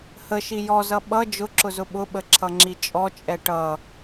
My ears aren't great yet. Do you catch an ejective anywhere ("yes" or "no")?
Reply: yes